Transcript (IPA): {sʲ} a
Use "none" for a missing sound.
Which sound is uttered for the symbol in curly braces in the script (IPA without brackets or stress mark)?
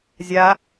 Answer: zʲ